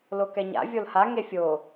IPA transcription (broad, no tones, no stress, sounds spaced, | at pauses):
l o k ɛ ɲ a̰ vʲ o l h a ŋ e fʲ o